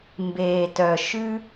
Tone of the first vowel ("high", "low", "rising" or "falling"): low